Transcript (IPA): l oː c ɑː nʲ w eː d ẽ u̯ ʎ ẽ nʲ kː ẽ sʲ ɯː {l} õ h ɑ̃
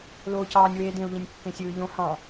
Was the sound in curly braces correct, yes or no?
no